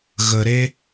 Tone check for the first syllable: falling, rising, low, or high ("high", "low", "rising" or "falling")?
low